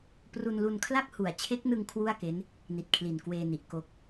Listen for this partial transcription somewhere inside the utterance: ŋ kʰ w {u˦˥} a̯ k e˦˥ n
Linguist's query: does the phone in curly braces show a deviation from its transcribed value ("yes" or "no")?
yes